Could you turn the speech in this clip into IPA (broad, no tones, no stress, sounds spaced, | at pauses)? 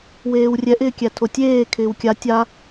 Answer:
w eː w rʲ ɛ ʔ ɪː kʲ æ tʰ o tʲ eː kʰ ɪː w kʲ a tʲ a